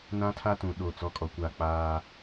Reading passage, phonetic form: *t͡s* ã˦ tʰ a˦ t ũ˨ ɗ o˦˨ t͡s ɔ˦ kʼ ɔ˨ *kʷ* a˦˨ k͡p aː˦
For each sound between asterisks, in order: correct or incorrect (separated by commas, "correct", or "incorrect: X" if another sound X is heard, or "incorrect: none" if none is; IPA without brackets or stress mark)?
incorrect: n, correct